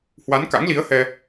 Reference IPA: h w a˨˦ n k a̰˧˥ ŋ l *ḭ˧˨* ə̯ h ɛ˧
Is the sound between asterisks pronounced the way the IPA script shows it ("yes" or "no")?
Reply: no